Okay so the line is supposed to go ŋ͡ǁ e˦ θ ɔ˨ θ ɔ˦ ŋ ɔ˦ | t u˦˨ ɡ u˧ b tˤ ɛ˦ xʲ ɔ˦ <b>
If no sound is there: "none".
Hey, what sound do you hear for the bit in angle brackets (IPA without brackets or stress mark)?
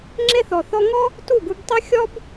b